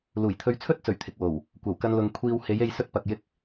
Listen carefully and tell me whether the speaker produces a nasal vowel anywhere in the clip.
no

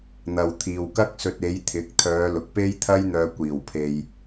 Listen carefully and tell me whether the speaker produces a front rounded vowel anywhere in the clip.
yes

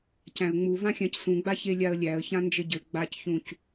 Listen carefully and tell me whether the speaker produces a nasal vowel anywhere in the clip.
yes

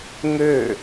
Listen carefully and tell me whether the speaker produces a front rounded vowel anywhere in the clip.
yes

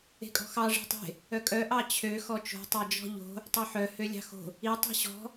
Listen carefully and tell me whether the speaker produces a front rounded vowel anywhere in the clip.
yes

